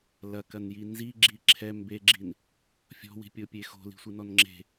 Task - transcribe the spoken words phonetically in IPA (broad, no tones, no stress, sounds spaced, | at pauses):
l ɐ k ɐ n j i n z i ɡ͡ǁ i ǁʰ ɛ m b e ɡ͡ǁ i n | fʲ ɔ̤ w i̤ pʲ o pʲ e x o̤ l i̤ sʷ ɨ n ɔ n ŋ͡ǁ e̤